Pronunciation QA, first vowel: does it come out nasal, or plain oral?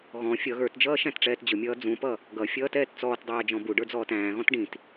nasal